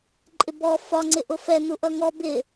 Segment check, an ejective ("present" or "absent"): present